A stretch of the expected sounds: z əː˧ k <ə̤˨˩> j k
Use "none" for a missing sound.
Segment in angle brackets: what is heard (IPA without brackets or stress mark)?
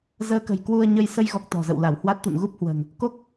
ə̤˨˩